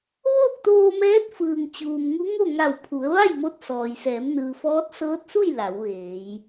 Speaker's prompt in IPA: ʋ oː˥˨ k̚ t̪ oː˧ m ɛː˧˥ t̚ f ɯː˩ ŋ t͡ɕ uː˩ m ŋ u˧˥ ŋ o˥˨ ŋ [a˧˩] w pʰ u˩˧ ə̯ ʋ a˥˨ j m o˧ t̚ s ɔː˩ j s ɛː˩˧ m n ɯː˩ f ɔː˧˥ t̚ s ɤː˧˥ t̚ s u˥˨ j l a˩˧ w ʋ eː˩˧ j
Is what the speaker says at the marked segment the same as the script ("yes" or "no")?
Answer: yes